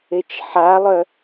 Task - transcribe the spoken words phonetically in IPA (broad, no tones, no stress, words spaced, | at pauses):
et͡ʃħalˠœ